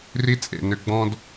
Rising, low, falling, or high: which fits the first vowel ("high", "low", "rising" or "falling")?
high